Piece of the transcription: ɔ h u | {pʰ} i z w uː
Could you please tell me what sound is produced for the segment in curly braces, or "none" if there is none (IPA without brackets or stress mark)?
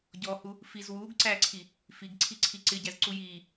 f